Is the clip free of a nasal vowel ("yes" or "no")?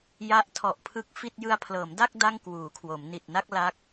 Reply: yes